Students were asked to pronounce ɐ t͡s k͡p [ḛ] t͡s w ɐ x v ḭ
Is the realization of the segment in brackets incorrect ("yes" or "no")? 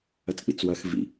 yes